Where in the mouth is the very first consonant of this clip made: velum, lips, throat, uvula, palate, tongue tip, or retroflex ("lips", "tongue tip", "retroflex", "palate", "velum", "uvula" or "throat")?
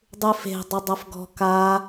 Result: tongue tip